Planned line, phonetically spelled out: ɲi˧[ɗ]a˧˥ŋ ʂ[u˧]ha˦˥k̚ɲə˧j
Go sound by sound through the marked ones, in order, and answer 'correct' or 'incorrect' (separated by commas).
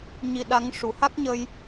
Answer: correct, incorrect